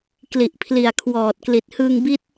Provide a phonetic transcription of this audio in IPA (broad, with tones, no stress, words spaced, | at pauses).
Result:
kli˨˩ʔpʰli˨˩a̯ kʰwɔː˨˩t̚kli˨˩t̚ hɯ˧ŋbi˦˥t̚